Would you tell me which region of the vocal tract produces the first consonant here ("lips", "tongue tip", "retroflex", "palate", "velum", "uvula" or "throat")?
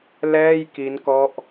tongue tip